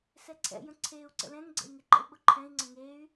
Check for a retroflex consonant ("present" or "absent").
absent